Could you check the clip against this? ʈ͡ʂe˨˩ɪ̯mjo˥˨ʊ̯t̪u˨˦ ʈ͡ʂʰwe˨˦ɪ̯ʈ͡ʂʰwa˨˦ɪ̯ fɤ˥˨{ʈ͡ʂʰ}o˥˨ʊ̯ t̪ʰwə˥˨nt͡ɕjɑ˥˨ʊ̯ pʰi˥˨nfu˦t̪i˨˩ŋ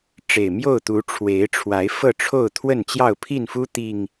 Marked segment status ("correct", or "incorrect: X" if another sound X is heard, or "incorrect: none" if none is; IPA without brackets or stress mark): correct